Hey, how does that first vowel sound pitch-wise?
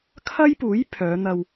high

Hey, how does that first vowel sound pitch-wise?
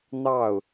falling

